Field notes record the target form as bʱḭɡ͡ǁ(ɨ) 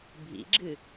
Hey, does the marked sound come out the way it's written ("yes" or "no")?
yes